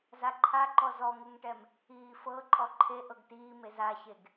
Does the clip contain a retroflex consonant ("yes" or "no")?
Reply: yes